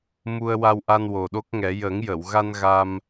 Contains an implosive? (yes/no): yes